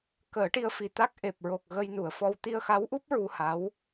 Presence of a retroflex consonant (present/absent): present